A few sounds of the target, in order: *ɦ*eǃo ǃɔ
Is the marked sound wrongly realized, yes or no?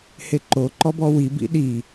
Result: yes